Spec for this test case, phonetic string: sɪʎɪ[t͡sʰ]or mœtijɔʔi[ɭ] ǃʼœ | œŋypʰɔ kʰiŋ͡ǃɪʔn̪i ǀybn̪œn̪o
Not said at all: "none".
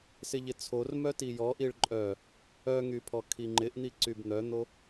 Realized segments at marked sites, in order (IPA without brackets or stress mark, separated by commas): t͡sʰ, ɭ